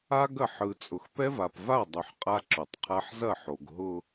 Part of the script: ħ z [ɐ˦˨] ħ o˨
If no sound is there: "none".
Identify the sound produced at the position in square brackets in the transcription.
ɐ˦˨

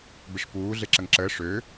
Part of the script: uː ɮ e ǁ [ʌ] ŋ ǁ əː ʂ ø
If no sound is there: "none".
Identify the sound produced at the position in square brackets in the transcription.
ə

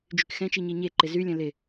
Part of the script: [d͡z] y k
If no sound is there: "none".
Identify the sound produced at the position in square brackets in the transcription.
d͡ʒ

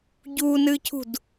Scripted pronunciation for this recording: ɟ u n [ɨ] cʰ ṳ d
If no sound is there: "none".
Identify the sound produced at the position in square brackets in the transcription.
ɨ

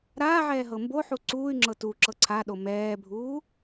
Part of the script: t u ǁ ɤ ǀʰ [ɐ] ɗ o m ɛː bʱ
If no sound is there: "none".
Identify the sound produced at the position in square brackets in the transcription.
a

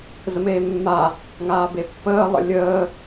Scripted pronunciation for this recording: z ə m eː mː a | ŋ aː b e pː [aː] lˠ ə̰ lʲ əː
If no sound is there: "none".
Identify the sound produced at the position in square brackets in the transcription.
əː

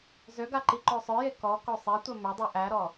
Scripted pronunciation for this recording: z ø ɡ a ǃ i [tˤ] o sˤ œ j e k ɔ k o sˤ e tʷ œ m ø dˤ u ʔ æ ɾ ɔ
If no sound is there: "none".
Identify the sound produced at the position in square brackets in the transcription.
ǃ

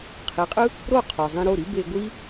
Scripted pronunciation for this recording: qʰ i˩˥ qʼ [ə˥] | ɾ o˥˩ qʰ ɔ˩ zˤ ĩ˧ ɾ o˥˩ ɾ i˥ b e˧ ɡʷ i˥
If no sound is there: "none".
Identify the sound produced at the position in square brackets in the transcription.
ɯ˥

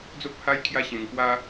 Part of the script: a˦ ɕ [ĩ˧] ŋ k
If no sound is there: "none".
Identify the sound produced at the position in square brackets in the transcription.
ẽ˧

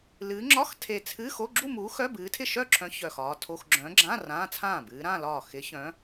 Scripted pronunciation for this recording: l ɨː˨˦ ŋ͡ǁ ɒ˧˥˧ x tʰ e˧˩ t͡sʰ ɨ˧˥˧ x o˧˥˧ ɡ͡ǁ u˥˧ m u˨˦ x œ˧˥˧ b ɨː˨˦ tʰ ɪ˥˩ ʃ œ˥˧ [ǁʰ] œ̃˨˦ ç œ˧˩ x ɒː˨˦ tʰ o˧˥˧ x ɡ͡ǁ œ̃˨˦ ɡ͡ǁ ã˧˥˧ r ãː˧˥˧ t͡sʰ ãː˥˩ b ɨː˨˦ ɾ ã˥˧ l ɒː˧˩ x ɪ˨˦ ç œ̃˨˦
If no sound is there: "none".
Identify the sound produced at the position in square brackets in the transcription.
ǁʰ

